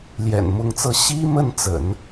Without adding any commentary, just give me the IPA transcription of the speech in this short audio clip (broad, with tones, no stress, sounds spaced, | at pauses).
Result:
l j ɛ̰˨˩ n m ʊ˧˥ ŋ t͡s ɤ˥˩ ɕ i˥ m ə˥˩ n t͡s ə̰˨˩˦ n